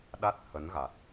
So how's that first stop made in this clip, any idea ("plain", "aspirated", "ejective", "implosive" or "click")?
implosive